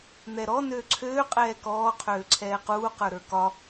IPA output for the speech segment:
n̪ ɛ ɾ ɔ n øː ǀʰ øː qʼ ɛː k ɔː qʰ øː ǀʰ ɛː q uː q ə˞ ɾ ə˞ k ɒ

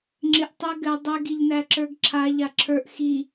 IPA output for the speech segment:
ŋ͡ǁ ɪ ʔ tˤ ɘ ɡ ɘ dˤ ɘ ɡ i ʎ n æ ǁ ə˞ ɡ ǁʰ a ʎ a ǁʰ ə˞ ʔ x i

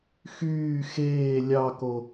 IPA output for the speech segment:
x yː x eː lʲ ɑ k o

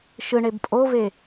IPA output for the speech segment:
ʃ ɯ ɳ e b pʼ o v e

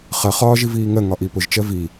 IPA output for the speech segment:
χ ɜ χ ɒː ʒ i v iː ŋ ɜ ŋ ɒ ʔ i p ʊ ʒ t͡ʃ ɜ v i

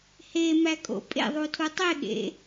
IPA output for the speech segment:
h e m æ kʼ o̰ pʼ ḛ ðˤ u tʰ u tˤ e ɠ ḛ

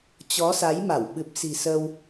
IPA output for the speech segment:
t͡ɕ ɔ˨˦ s a˨˦ j m a˧˩ w ɓ ɨ˨˩ p̚ s i̤˨˩ s ə˧ w

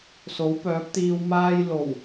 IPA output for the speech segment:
s o˨˥ w p œː˨˥ p̚ t̪ iː˧ w m aː˥ j l o˨˩ w

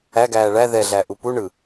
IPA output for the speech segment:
æ ɡ æː ɭ æ ð ɛ ɮ æ ʔ u p u ɳ ɯ

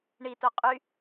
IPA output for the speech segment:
ɳ i t o qʼ y

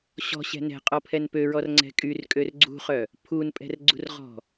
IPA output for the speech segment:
ɕ ɔ̤ ɕ ɛ̤ n ɛ̤ qʼ ɔ pʰ ɛ n p ø ɹ ɔ r ŋ͡ǀ ɛ̤ kʼ y r kʼ ø r ɡ͡ǀ ṳ χ œ | pʰ u n pʼ ɛ̤ r ɡ͡ǀ ṳ r ʁ ɔ̤

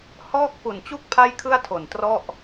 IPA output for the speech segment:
h ɔː˥˩ k̚ f u˨˩ n t͡ɕ u˥˩ k̚ pʰ a˥˩ j kʰ ɯ˥˩ a̯ tʰ o˨˩ n t r ɔ˥˩ ʔ

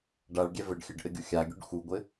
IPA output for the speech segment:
ɖ a ɭ ɡʲ ɛ v ɘ ɖ xʲ ɘ ɖ ʔ ɘ ɡʲ u xʲ a ɡʲ u ɖ x u ɡʷ ɘ

